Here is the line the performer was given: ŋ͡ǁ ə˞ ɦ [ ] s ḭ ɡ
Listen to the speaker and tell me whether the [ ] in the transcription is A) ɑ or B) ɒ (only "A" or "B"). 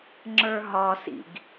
B